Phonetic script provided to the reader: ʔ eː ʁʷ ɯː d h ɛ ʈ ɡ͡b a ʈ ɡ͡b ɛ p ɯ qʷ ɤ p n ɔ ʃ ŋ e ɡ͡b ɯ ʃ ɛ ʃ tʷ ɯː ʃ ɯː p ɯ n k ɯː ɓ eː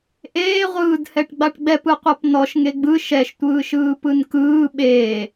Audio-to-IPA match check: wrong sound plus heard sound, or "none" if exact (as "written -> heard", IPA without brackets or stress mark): none